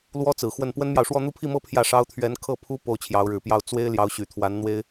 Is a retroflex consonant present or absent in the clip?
present